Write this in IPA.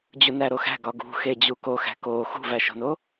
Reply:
d͡ʑunæɾoxæ̤ ɡɒɡṳ xed͡ʑuko xæ̤ko xṳvæʃo̤no

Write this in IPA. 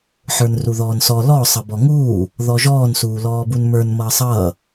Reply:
ħə˞nruðɔːnsɔ lɔ sˤʌbɔŋuː | ðɔʒɔːn suːlɔːbunmə˞n mʌːsˤʌː

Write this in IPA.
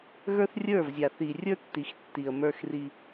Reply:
ɣə˞˦θrʲə˞˦˨vzʲa˨ θi˨rʲə˞˦tːi˨xtːi˨ə̯ mə˞˦xri˦

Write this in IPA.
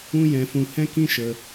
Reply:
ũ˦jɛ̃˧fũ˧ hɛ̃˦kĩ˦ʃə˧

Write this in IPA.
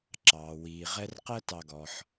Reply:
ǁɑː˩ wiː˩ʁɛ˥r qɜ˥tɑ˨ɡɔ˩ħ

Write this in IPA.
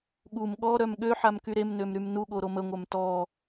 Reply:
ɠum ɠɔ ɾœmɠøħam kyɾemnøm ɾymnuɠo ɾoməŋʷœm tɔ

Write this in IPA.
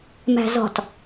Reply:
mæ̤zɔ̤t

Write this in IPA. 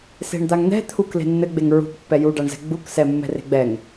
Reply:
se̤ɳd̪aŋn̪ɛ̤ t̪ʰuk le̤nːɘɡ͡beŋ ɹṳkpːɛ juɖaɳzɛ̤ ɡ͡buksɛ mːɛ̤re̤ɡ͡bɛŋ

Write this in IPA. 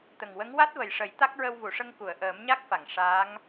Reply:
t̪ə˨˩ŋwə˧˥ŋ wa˦˥t̚və˨˩jʂə˨˩˦j t̪a˦˥k̚ɹə˧wvu˨˩˨ʂə˧ŋ ku˨˩˨ə̯ʔəː˨˩˦mɲa˦˥k̚ fa˨˩˨ŋ ʂaː˧˥ŋ

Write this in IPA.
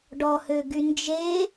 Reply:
ɖɔhøɡy nd͡ʒe

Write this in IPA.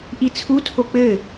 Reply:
ʔit͡sʰutʰo k͡pɘ

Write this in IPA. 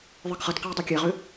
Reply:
ðˤɨɡχʌtqaj dˤekʲɛʁʏ

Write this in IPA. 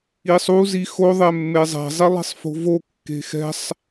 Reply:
isˤu zixo ðˤɛmːezˤɛ̤ zˤilˠi̤sˤfo̤vo kːe̤xɛ̤sˤ

